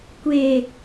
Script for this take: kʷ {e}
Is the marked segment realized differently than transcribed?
no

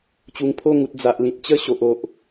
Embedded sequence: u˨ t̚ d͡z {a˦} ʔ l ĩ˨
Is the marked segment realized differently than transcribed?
yes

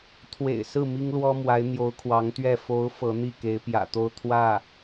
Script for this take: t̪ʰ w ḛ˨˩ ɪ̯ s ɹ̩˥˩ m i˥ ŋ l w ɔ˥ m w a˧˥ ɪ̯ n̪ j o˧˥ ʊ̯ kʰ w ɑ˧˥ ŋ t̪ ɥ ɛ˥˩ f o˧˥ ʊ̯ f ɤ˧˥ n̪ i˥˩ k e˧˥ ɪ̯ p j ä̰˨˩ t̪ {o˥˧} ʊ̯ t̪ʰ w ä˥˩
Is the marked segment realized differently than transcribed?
no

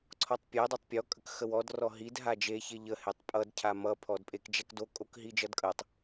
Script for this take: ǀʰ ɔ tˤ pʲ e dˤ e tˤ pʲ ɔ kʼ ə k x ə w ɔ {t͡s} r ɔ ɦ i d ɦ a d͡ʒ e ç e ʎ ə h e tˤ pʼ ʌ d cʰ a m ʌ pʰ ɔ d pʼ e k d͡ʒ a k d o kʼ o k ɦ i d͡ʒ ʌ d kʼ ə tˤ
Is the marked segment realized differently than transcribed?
yes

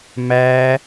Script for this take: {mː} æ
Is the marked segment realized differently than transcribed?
yes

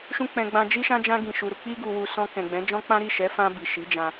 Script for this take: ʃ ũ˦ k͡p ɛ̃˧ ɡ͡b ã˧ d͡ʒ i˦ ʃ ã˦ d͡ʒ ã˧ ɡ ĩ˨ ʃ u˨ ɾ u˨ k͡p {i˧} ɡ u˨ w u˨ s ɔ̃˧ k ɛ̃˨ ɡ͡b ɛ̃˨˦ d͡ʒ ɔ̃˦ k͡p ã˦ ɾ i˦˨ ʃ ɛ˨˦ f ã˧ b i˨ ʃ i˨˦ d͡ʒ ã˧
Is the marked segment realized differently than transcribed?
no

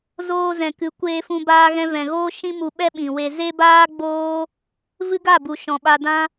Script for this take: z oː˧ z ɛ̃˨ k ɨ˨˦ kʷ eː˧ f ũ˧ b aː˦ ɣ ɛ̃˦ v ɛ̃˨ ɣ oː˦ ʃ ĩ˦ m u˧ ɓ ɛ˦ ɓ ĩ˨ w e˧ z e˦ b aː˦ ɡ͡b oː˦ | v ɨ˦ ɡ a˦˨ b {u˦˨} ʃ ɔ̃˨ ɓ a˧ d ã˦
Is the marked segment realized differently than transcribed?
yes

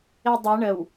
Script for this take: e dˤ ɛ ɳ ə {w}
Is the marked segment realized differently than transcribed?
no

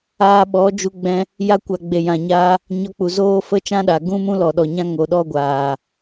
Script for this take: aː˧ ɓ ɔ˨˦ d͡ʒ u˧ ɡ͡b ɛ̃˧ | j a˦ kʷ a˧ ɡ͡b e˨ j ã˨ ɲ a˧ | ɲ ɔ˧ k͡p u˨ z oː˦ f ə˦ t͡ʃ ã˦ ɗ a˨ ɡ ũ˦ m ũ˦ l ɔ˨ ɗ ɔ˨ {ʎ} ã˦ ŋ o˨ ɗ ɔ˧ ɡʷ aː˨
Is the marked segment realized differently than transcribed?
yes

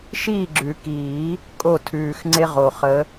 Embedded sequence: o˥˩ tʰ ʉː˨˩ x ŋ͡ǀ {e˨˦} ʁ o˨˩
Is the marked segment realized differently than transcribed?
yes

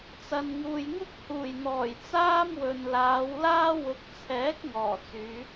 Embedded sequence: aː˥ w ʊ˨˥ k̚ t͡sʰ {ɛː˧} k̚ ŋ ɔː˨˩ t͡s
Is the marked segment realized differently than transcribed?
yes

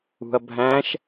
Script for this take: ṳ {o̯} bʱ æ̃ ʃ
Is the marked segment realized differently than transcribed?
yes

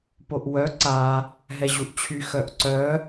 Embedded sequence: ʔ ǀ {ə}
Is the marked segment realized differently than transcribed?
yes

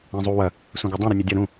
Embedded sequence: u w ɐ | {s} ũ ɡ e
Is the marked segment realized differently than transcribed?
no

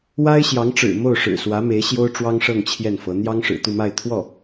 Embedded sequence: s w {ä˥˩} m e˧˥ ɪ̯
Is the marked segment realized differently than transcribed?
yes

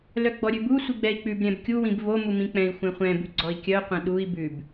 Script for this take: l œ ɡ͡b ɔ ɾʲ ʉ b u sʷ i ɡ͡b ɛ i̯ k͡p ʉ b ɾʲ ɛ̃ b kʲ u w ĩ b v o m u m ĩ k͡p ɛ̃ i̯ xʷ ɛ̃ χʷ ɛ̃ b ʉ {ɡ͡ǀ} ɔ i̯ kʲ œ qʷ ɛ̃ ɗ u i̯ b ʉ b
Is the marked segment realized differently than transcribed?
no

